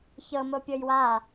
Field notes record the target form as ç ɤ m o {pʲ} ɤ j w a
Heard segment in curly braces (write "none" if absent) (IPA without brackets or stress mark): pʲ